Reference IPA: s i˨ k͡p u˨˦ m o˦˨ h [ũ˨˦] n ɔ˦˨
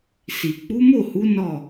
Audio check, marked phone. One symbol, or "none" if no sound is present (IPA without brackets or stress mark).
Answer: u˨˦